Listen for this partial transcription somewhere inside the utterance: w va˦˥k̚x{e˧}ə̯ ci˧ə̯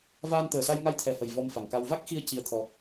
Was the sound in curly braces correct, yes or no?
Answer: no